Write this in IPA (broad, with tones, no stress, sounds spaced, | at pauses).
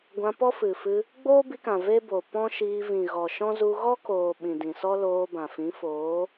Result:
ɡʷ ã˧ p ɔ˦ f ɨ˨ f ɨ˧ | ɡ͡b oː˦ b i˧ k ã˨ v e˦ b o˨ p ɔ̃˦ ʃ iː˧ v ĩ˨ ɣ ɔ˨ ʃ ɔ̃˦ z u˧ ɣ ɔ˦ k oː˨ ɓ ĩ˨ d ĩ˨ s ɔ˦ l oː˧ b ã˨ f ĩ˨˦ f oː˨˦